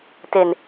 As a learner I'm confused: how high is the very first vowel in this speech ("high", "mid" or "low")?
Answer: mid